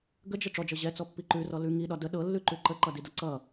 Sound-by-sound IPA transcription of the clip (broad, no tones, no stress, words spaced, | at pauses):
ɡəd͡ʒə ʈ͡ʂɔd͡ʒɤ ʑɛt͡sɔpːi ǃʉrɔ lʉ ŋiɗɒ də ɗɤlːʉǃʉ ǃəǃʌdidʌ ǀʌ